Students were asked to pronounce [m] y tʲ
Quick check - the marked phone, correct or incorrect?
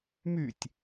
correct